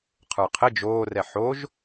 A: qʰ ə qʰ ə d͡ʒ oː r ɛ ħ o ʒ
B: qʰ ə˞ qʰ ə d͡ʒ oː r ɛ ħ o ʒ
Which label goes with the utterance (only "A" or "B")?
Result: B